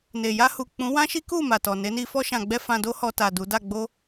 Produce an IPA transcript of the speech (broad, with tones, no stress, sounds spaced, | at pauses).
n e˨ j a˧ h u˨ k͡p ũ˨˦ w ã˦ ʃ i˦ k u˦˨ m a˨ t ɔ˨ n e˨˦ n i˦ f ɔ˧ ʃ ã˨ ɡ͡b ɛ˧ f ã˧ d o˦ h ɔ˧ t a˨ d u˨˦ d a˦˨ ɡ͡b o˧